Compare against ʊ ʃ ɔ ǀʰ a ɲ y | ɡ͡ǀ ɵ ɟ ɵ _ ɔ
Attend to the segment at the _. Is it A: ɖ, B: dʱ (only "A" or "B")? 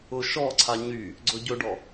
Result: A